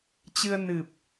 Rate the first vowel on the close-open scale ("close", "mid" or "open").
close